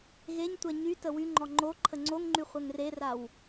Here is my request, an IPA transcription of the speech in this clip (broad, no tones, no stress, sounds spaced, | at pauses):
ɣ e ɲ tʷ ɛ ɲ y t ə w y ŋ͡ǃ ɔ ŋ͡ǃ o ǃʰ ə ŋ͡ǀ o ŋ ŋ͡ǃ y χʷ ɛ ŋ r e r a w